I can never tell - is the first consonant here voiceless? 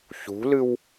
yes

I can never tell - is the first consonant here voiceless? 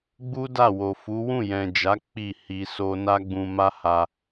no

